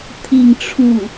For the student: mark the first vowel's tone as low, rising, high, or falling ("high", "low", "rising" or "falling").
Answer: falling